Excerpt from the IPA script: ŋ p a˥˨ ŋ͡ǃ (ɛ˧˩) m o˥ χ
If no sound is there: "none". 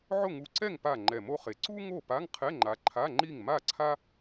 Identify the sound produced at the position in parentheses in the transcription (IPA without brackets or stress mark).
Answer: ɛ˧˩